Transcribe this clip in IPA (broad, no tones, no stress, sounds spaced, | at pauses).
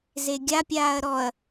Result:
z e ɡʲ a pʲ aː ɐ̯ ɾ ɔ ɐ̯